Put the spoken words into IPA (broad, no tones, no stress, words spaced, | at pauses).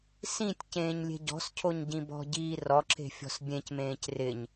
sĩtʲ cẽːɲlʲe̤ɟɔ̤scʰoɲ ɟĩbɔ̤ɟiː rɔǁe̤ fʲɔ̤sbʲẽcmẽːc rɪɲ